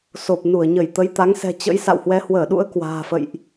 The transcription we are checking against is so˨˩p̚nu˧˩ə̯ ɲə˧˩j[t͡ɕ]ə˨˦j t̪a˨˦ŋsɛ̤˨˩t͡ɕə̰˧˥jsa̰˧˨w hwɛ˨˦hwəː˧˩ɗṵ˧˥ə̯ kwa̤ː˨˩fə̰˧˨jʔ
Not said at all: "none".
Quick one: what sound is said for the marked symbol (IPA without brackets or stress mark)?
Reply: t̪